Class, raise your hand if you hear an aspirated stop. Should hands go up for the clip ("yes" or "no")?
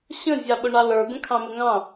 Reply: yes